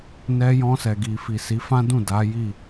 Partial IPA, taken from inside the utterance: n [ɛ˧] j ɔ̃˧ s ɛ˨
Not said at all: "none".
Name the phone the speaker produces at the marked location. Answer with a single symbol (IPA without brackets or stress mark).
ɛ˧